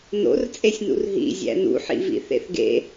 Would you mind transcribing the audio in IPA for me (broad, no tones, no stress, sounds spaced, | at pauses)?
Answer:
n o̰ r t͡sʼ e sʲ n ṵ r ɦ ḭ zʲ æ̰ n ṵ ħ ḭ v ḭ θ ḛ θ ɡ ḛ